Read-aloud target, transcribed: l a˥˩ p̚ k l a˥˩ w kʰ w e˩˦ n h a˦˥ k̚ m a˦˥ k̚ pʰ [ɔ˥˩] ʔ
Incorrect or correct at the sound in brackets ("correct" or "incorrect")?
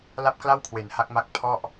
correct